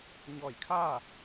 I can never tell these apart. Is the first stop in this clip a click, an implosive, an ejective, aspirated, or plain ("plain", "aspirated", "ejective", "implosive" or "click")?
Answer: aspirated